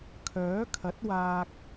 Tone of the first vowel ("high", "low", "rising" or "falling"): rising